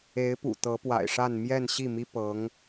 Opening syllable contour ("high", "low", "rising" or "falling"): rising